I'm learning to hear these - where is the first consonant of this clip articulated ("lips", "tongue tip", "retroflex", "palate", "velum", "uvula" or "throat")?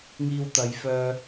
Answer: velum